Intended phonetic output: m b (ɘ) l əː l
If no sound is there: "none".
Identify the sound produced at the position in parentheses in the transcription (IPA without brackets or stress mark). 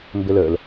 ɘ